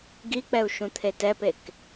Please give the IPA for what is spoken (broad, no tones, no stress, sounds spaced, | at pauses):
ɡ i k͡p ɛ u̯ ʃ ũ t̪ʰ e t ɛ p e k